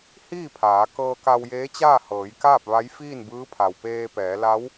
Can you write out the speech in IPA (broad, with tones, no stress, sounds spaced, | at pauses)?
h iː˥˨ pʰ aː˩˧ k ɤː˧ k a˧ w j eː˧˥ t͡ɕ aː˥˨ h ɤː˩˧ j k aː˥˨ p̚ ʋ a˧˥ j f iː˥˨ n b ɯː˧˥ pʰ a˩ w p eː˧ p ɛː˩˧ l a˧˥ w